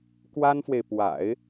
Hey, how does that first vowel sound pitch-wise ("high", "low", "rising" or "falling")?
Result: high